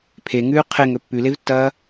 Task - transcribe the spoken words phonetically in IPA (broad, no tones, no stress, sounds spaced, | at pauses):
pʰ e ŋ ʉː qʰ e ŋ ɵ pː ʉ l e v tː ɐː